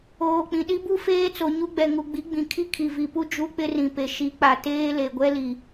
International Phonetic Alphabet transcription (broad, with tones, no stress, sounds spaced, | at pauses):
oː˨ k͡p ĩ˨ ɗ i˦ b u˦ f eː˦ t͡s o˨ ɲ u˦ ɡ͡b ɛ˨ ŋ u˨ ɡ͡b i˨˦ ɡ͡b ĩ˨ kʰ i˦ kʰ i˨ v i˨ p u˦ d͡ʒ u˦ k͡p ɪ˦ r ĩ˨ p e˨ ʃ i˨˦ k͡p a˨ t eː˦ l e˨ ɡʷ ɛ˦ l i˨